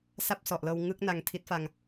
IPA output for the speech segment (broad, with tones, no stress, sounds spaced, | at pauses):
s a˥˩ p̚ s ɔ˨˩ ʔ l ɤː˧ w ŋ ɯ˦˥ k̚ n a˧ ŋ tʰ i˦˥ t̚ f a˧ ŋ